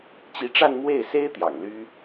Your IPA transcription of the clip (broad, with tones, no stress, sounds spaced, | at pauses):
t͡ɕ i˧˥ ʈ͡ʂ a˥˧ n m w e˥˩ ɪ̯ s e˥ ɪ̯ t̪ j ɑ̰˨˩ ŋ l y˥